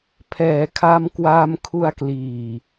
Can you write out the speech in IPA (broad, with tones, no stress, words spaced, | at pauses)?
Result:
pʰɛː˩˦kʰa˧mkwaː˧m kʰu˧a̯kliː˨˩